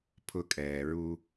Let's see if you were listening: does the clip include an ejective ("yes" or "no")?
yes